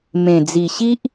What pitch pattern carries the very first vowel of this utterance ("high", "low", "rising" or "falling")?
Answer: low